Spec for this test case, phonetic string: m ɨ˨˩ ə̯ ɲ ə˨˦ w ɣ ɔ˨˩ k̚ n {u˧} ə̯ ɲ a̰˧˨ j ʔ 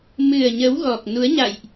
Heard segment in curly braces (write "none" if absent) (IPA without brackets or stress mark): u˨˦